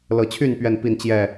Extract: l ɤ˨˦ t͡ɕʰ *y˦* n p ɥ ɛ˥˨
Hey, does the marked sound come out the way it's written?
no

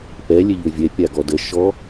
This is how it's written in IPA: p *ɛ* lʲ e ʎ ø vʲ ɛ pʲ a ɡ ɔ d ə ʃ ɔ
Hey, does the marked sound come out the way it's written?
yes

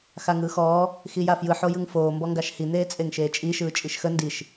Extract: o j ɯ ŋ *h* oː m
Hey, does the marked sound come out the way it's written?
no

